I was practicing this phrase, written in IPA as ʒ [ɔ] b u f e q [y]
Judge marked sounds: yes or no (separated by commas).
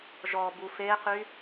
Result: yes, yes